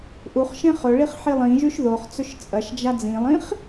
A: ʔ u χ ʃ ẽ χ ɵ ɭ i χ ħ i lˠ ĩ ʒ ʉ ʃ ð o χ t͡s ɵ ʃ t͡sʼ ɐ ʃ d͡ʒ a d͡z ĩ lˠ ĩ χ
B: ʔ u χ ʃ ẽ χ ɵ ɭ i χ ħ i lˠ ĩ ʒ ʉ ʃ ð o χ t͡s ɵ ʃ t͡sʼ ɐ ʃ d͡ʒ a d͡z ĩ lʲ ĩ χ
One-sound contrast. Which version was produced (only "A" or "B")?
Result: A